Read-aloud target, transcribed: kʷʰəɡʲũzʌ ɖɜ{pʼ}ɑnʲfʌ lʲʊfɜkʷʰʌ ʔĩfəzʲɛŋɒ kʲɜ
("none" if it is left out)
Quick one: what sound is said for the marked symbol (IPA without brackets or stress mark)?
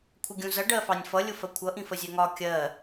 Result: f